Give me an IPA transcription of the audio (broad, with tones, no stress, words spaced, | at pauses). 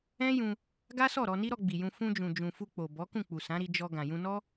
ɛ̃˦jũ˧ | ɡa˦sɔ˦˨ɾɔ˧ni˦ ɾɔ˧ɡ͡bi˨jũ˧ fũ˧d͡ʒũ˨d͡ʒũ˨ fu˧k͡po˨ bɔ˨˦ kũ˦˨k͡pu˨sã˨˦ ɾi˧d͡ʒɔ˧ ɡã˨jũ˧nɔ˦